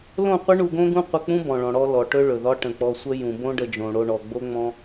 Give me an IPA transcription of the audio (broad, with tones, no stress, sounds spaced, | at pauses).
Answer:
l õ˦˨ qʷ ə˦ ɳ u˧ ɡ õ˦ ɡ ũ˦ qʷ ə˧ k͡p ũ˦ b ɔ̃˨ ɭ ɔ̃˨ ɽ ɔ˧ l ɔ˨ ʈ ɵ˦ ɭ ɵ˨ ð ɒ˦ ʈ ə̃˨ k͡p ɔ˧ sʷ ə˦ j ũ˨ b õ˦ ɖ ə˧ d͡ʒ õ˨ ɽ o˧ ɳ ɔ˨ ɡ͡b o˦ ŋ͡m ɔ̃˦